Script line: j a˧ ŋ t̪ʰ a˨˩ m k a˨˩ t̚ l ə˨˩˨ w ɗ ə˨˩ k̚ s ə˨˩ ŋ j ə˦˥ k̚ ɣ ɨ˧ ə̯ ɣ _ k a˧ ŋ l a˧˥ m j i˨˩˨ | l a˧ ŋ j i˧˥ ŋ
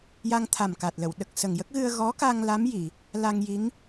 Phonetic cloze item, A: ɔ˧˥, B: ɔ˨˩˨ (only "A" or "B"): A